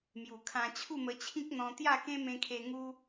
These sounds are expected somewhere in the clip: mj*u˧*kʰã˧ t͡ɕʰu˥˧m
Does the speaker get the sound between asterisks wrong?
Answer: yes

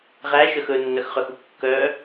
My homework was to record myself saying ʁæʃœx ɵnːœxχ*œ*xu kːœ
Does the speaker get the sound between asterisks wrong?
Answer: no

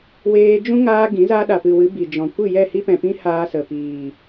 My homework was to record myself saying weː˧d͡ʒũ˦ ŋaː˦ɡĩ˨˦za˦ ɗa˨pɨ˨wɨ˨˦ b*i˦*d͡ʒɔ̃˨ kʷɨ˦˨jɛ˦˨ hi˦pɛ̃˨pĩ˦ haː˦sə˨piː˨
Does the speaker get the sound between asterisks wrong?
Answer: yes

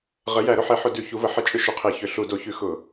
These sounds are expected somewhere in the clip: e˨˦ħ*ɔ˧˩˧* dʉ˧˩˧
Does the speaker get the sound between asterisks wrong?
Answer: yes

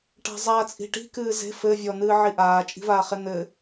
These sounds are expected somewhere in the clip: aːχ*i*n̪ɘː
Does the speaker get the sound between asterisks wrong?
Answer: yes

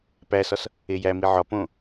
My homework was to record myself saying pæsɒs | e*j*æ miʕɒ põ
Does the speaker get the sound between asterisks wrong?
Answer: no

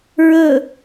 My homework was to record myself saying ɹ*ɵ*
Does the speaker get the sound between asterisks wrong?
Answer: no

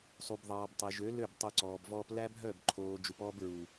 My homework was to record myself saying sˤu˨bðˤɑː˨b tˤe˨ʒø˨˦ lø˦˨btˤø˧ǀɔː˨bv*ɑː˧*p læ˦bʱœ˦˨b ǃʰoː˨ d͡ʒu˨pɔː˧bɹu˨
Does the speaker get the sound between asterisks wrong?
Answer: yes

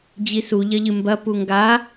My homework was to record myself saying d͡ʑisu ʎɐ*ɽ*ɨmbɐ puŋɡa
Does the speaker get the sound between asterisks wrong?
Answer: yes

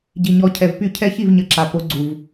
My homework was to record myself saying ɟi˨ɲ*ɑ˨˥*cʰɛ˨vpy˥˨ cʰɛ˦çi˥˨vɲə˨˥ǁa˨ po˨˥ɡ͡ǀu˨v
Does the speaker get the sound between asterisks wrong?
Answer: yes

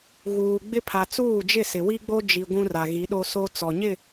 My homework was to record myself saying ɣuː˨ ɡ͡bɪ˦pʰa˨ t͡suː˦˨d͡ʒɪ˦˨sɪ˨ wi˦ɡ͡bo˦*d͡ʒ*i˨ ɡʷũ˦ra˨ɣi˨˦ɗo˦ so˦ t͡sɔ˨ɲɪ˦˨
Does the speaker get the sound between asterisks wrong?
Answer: no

